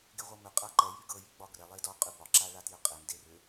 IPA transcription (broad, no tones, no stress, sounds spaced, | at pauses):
ɡ e ʁʷ ɤ m ʏ qʼ a ǃ ɛ j y ɡ ɤ j y ɡ͡b ɒ ɡ r ɛ lˠ e d ɒ qʼ y b ɒ ǁ a ɭ a t j ʏ qʼ e m d e r ʏ